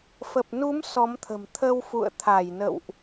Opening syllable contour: low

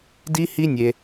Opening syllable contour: high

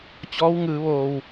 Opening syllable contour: rising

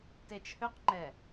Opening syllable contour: low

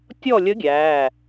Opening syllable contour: falling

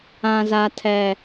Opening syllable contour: low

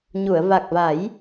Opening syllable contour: low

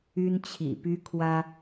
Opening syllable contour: high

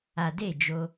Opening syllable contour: low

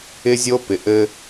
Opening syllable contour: high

